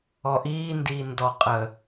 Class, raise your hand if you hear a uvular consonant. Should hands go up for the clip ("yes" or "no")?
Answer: yes